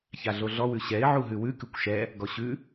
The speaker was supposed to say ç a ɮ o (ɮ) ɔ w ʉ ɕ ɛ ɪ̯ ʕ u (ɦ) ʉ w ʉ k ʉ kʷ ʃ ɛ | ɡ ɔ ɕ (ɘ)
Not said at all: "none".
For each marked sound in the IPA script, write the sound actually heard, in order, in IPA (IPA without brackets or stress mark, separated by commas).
ɮ, ɦ, ʉ